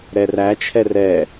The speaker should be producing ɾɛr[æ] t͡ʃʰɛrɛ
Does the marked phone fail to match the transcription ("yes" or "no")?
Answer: no